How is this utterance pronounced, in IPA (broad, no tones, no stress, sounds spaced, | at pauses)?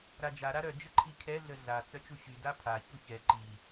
ɾ a d͡ʒ a ɾ a ɾ œ d͡ʒ ə ǃʰ i kʰ ɛ ɮ ə ɮ a t͡s œ t͡ʃ u ɕ y d a pʰ a ç u ç ɛ ǃ i